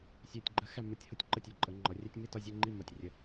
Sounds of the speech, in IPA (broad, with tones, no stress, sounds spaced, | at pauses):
sʲ æ˧˩ tʲ ɡ͡ǃ ɜ˧ x æ˥˧ m ə˩˧ tʲ h ʊ˥˧ tʲ ǃ ə˧ tʲ ɒ˩˧ ǃʼ ə˩˧ ŋ͡ǃ ɒ˩˧ rʲ æ˥ tʲ m i˥˧ t ɒ˥˧ zʲ ɜ˥˧ ŋ͡ǃ i˥˧ m ɒ˧˩ tʲ rʲ ə˧˩